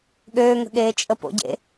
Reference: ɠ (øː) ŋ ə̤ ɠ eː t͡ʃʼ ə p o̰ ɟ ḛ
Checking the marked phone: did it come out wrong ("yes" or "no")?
no